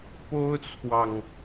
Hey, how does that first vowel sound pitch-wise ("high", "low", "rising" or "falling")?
high